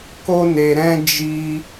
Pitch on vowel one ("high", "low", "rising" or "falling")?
high